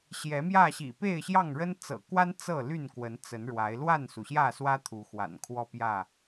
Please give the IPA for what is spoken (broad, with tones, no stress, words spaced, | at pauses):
ɕjɛ˨˦mjä˥˨ɕḭ˨˩ pe˥˨ɪ̯ɕjɑ˥˨ŋɻə˦n t͡sɤ̰˨˩kwa˦n t͡sɤ˥˨ ly˥˨nkwə˨˦n t͡sə˨˦nɻwa˨˦ɪ̯ lwa˥˨nsu˩ɕjä˥˨swä˦ t̪ʰu˨˦xwa̰˨˩nkʰwɔ˥˨ pjä˥˨